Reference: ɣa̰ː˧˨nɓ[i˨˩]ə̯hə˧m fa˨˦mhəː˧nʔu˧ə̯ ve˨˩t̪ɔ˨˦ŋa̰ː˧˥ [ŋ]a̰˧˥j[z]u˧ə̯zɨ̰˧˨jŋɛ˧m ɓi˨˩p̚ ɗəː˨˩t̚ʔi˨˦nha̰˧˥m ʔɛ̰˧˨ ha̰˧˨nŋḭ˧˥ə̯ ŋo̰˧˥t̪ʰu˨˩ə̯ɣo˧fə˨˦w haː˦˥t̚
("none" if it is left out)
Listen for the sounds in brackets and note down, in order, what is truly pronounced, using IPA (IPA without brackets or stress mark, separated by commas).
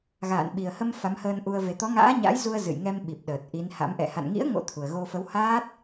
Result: i˨˩, ɲ, z